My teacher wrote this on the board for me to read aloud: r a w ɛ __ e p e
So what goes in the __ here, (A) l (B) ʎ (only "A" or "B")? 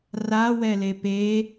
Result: A